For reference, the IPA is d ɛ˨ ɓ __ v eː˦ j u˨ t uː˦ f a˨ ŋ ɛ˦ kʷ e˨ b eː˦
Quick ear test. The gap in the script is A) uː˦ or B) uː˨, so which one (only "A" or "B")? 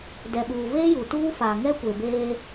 B